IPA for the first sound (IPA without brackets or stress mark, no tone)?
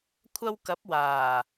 kʷʰ